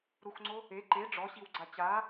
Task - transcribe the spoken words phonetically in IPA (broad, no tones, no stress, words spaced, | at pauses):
ɾuxŋ͡ǀo | e ǃe ɖ͡ʐɔɕiwɡ͡ǀa t͡ɕa